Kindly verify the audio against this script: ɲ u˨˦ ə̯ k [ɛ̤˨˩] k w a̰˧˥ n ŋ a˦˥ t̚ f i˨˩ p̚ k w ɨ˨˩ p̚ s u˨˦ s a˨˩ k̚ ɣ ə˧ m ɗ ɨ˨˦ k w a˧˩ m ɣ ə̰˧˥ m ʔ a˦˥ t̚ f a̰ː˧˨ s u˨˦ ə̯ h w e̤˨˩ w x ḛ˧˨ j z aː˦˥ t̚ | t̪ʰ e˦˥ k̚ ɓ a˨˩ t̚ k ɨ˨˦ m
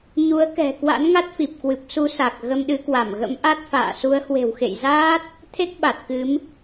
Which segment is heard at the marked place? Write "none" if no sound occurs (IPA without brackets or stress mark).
ɛ̤˨˩